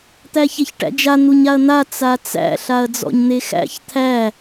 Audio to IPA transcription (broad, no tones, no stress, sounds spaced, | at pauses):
t̪ æ ç e ç ʈ æ̰ d͡ʒ a n̪ u ɲ a ɐ̯ n̪ a t͡s a t͡s æ̰ ɬ a ɐ̯ d͡z ɔ̰ ɲ n̪ e x æ̰ ç t̪ʰ æ